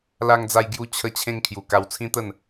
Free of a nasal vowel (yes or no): no